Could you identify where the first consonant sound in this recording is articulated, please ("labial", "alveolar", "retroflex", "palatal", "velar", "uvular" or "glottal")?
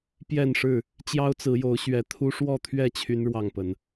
labial